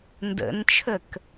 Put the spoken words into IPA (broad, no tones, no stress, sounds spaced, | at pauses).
n d ə̰ n t͡ʃʰ ə k